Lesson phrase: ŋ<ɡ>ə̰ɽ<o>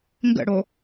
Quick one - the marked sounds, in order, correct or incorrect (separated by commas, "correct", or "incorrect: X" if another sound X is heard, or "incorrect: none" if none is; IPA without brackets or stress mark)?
correct, correct